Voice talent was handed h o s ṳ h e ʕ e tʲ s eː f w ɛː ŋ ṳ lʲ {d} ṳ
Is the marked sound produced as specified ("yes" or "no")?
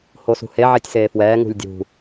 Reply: no